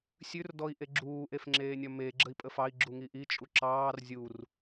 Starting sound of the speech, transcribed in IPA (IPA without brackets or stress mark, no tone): sʲ